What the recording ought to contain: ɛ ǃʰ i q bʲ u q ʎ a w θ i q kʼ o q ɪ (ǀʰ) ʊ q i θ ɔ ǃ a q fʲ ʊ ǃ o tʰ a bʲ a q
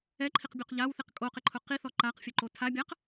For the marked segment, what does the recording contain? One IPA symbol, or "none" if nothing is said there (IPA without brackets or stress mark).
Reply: ǃʰ